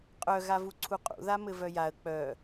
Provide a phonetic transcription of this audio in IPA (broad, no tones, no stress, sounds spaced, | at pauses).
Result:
qʼ œ ɣ a v u ǀʰ u qʼ ṵ ð a m ɘ v œ j a ə̯ k͡p œ